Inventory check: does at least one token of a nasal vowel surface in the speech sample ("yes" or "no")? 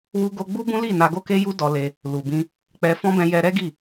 yes